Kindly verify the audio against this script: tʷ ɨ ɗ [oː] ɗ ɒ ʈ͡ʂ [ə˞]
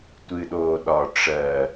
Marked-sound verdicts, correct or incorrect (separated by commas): correct, incorrect